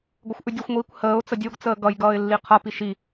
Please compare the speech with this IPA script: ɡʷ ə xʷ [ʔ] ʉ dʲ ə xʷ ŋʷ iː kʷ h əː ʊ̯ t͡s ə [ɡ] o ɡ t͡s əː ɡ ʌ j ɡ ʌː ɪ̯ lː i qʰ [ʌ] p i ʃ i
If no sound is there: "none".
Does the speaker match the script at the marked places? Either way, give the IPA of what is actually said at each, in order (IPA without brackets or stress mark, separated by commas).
ʔ, dʲ, ʌ